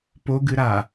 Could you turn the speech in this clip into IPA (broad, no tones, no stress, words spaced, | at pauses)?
poɡɨɾa